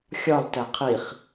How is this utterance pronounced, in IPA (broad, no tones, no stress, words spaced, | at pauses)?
xʲɒlˠtæ qʰiχ